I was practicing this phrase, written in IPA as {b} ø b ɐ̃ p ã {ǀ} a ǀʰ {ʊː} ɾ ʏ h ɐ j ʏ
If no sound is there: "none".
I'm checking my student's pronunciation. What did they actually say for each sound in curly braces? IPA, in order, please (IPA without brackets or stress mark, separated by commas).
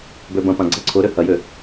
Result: b, ɡ͡ǀ, ʊ